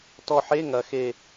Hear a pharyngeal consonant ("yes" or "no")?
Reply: yes